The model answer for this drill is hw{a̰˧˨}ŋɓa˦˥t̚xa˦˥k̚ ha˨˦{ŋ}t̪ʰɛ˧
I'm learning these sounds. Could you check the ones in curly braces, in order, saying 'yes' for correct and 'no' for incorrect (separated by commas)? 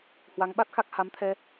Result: no, no